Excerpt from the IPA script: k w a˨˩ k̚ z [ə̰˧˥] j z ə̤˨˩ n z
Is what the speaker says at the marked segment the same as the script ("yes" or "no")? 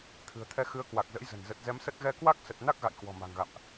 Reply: yes